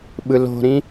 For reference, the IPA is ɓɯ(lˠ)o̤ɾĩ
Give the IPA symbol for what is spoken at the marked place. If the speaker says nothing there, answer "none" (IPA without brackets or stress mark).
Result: l